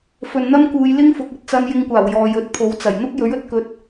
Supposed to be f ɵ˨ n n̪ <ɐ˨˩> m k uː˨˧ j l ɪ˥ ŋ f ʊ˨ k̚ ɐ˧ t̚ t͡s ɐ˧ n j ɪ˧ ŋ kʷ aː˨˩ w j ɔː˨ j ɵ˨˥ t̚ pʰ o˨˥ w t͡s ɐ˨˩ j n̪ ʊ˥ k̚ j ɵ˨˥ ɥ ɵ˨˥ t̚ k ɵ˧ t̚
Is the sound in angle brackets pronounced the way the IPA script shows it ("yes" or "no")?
no